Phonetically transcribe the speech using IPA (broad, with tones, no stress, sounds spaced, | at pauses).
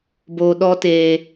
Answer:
b oː˧ ɗ ɔ˦ t eː˧